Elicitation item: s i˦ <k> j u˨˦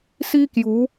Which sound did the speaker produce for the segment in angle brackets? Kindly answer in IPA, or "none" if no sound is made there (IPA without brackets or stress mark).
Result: k